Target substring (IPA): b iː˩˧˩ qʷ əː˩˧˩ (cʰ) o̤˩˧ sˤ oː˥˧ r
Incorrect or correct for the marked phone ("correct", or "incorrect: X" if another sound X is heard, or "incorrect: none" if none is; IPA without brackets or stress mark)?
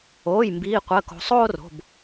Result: incorrect: k